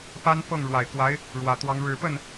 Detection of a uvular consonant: absent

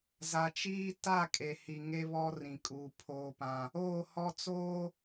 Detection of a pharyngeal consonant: absent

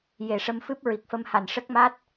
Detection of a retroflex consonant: present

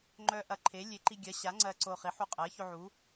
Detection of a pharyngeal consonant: present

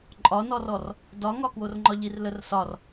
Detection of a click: present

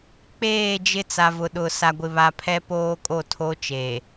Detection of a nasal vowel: absent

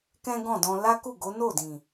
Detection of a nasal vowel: present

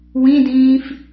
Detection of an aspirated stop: absent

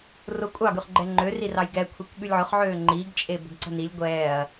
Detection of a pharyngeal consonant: present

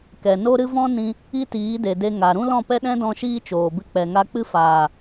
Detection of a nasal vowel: present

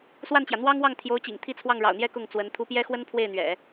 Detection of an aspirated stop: present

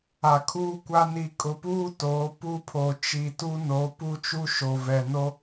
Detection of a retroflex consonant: absent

